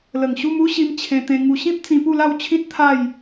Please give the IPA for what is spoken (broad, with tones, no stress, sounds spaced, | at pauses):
l ə˨˩ ŋ ɕ u˦ m u˦ ɕ i˧ m t͡ɕʰ ẽ˧ t̪ ẽ˧ ŋ u˧ ɕ ĩ˦ p̚ t͡s ĩ˧ p u˥˧ l a˥˧ w t͡ɕʰ ĩ˦ t̚ t̪ʰ a˥˧ j